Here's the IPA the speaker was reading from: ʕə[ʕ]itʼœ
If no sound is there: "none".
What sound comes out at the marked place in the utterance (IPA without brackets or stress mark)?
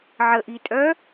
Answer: ʔ